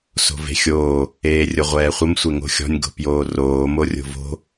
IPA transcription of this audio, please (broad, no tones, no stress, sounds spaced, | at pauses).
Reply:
s o̤ v e̤ xʲ oː | eː rʲ ʊ ʁʷ ɛː χʷ ə m sʷ e ŋ o̤ xʲ ɔ̤ nʲ ɡ o̤ p j oː r oː m o rʲ o̤ v o̤